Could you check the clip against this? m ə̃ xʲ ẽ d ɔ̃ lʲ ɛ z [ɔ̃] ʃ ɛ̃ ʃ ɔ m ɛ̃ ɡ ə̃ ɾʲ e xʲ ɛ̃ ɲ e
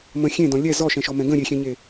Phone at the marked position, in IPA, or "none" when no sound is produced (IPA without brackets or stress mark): ɔ